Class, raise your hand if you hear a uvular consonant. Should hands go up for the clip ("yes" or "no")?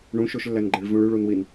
no